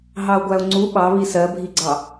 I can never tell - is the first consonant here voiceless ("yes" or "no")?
no